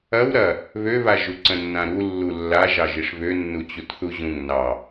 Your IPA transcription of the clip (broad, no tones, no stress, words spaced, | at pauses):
ɐw ɾɐ | βøβa ʒuǀə̃nːãɾu lːulːa ʒɑʒiʂβø nːut͡ɕutθuʑũŋ nɑ